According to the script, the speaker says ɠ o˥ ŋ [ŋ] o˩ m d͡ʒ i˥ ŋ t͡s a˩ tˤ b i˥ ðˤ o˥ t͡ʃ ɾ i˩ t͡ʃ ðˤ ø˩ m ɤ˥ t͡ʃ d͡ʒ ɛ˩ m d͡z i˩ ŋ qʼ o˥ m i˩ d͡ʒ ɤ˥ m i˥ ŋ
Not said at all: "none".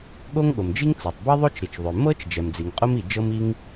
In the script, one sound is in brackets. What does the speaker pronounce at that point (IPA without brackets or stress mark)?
ɠ